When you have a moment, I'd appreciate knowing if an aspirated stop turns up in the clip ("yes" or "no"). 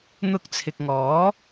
yes